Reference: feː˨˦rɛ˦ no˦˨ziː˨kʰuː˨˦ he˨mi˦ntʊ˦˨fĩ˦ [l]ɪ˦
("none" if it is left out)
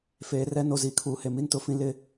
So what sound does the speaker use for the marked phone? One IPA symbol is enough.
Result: l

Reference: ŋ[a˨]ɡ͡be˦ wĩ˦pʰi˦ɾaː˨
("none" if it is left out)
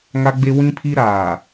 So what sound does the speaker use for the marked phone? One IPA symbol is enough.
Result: a˦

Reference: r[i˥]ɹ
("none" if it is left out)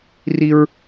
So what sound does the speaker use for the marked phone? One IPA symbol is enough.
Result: i˥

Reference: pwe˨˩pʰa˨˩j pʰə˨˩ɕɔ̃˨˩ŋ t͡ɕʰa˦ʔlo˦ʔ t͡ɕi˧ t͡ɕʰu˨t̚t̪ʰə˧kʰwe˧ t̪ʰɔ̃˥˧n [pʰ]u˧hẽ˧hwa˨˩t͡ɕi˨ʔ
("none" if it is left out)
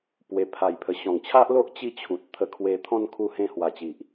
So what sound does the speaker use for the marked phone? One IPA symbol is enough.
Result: kʰ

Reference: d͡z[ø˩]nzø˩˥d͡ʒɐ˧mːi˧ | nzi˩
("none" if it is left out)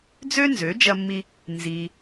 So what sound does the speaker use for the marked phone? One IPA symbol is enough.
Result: ø˥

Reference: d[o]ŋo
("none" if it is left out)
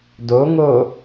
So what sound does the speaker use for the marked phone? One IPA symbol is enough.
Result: o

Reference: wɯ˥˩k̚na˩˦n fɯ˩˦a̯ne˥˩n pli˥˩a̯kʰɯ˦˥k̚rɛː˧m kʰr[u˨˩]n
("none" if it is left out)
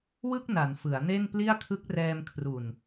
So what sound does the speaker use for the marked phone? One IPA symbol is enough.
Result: u˨˩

